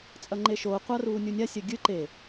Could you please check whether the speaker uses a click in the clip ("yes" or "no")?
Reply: yes